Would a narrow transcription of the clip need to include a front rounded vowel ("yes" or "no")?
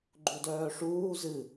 yes